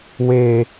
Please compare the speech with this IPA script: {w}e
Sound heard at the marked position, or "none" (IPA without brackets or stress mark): w